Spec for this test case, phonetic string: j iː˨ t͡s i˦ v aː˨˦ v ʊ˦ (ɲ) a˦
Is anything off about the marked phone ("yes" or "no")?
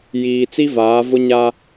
no